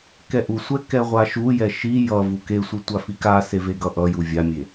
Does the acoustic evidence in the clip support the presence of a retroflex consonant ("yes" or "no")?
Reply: no